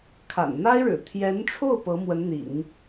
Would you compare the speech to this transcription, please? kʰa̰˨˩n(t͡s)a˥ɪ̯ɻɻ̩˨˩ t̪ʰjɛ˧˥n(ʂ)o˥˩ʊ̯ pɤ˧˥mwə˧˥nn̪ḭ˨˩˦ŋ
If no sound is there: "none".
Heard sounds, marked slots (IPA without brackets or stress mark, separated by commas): n̪, ʈ͡ʂʰ